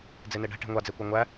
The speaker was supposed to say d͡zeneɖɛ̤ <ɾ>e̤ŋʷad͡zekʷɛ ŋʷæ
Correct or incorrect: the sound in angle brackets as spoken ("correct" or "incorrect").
incorrect